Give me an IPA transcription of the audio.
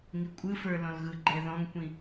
ŋ i kʷʼ ɯ f ə˞ l ɔ̃ l ɣ ɯ ɡ͡ǃ ɛ ð ɔ̃ ŋ kʷ ĩ

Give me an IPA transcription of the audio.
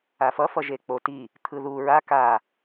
a f ʌ f ʌ ʒ e k͡p o t i | t̪ʰ ɯ ð u ɹ a k a

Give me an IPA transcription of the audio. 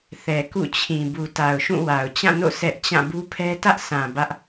θ ɛ˨ k ṵ˦˨ t͡ɕʰ ĩ˨ b u˨ t a˨ ʊ̯ ʃ ũ˦˨ w a˨ ʊ̯ t͡ɕ ã˦˨ n o̰˦˨ sʰ ɛ˦ ʔ t͡ɕ ã˦˨ b u˦ pʰ ɛ˦ t ä˦ ʔ s ã˨ b ä˦ ʔ

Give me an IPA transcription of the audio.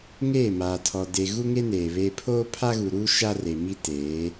ŋ eː˦˨ m aː˨ tʰ ɔ˨ d e˨ ɣ u˦ ŋ e˦ n eː˨ β e˦ pʰ oː˦ pʰ a˦ ɣ u˨ ɾ u˦ ʃ a˦ r e˨ m i˦ t eː˨˦

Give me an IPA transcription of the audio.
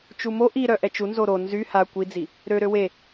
t͡ʃ u m o ʔ i ɾ œ ʔ ɛ t͡ʃ u n z o ɾ o n z y h a kʷ i d͡z i | ɾ ø ɾ ø w e

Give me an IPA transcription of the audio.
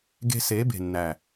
ɡ e̤˧ s e˨˦ b e̤˨ nː æ˨

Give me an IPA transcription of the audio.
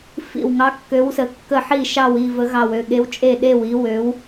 f ḭ˧˩ w ŋ ɑ˨˦ kː ø˨˦ w s ə˨˦ kː ə˧˩ ħ i˧˩ ʃ ɑ˧˩ w i˧˩ v ə˨˦ ɣ ɑ˧˩ w ø˧˩ ɠ e˨˦ w t͡ʃʼ e˧˩ ɗ e˧˩ w i˨˦ w ø˨˦ w

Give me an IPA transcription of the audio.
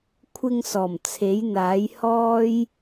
kʷʰ ɪ˧ ŋ s ɔː˨˩ m t͡sʰ e˨˥ j n̪ aː˨˥ j h ɔː˥ j

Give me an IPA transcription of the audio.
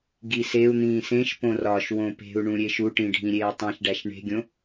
ɡ i s e u̯ n̪ ĩː s ẽ ʃ p õ r ɒ ʃ w õ p e̤ u̯ ɳ ũ ɾʲ e ʃ u ʈ ĩ ɖʱ ĩ ɾʲ eː tˤ ĩ ʃ ɖ æ ʃ ɳ e̤ ɡʲ õ

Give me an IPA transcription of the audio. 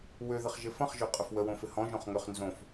w ø ð ɪ χ ʒ ɪ f ɐ̃ χ ʒ ø qʼ ə f w ə w õ f ɪ h ɔ̃ ʒ õ χ ŋ ʏ χ n z õ f

